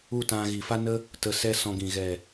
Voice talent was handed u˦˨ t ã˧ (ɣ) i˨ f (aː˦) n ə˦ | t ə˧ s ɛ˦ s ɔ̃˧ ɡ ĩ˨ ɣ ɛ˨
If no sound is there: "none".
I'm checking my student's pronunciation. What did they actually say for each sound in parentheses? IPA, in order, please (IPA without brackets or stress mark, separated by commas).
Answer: ɣ, a˦